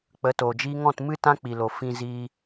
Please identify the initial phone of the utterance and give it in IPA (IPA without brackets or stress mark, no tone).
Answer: k͡p